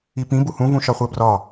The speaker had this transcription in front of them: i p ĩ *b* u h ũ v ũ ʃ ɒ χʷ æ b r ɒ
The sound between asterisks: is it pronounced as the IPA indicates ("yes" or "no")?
yes